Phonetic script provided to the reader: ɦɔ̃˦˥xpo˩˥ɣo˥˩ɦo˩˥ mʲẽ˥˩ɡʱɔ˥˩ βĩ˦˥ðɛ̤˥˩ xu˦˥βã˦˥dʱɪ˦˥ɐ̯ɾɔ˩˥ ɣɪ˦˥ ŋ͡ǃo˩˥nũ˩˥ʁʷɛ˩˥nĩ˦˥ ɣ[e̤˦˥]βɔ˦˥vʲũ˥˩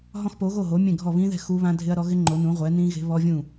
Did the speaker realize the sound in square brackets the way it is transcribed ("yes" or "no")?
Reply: yes